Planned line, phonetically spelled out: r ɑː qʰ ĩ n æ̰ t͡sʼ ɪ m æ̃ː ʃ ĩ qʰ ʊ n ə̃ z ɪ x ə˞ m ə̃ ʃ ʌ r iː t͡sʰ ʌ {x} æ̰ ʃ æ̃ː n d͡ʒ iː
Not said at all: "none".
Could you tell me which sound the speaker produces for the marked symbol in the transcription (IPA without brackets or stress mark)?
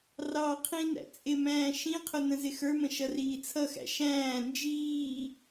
x